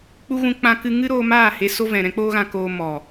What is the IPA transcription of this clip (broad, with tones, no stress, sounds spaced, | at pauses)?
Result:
k͡p u˧ ɣ ũ˧ k͡p ã˧ k ɨ˧ ŋ ɨ˦ ɾ oː˧ m aː˦˨ h e˧ s o˦ v ɛ̃˨ ɾ ɛ̃˦ k͡p oː˦ ɣ ã˧ k oː˧ m ɔ˨